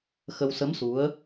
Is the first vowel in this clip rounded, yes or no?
no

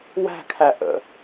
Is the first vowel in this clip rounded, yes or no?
no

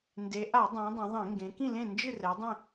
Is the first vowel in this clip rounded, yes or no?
no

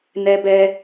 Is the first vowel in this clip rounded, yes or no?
no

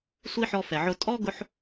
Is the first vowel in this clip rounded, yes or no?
no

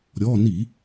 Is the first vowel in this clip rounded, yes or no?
yes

